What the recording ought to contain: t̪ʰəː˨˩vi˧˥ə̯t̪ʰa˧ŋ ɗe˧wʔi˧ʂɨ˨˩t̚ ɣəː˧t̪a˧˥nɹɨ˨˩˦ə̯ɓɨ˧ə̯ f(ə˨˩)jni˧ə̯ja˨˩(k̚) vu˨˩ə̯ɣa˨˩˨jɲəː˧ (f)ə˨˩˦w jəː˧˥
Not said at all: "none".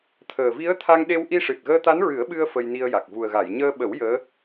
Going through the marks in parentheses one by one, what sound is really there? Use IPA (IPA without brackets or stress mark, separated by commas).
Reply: ə˧, k̚, ɓ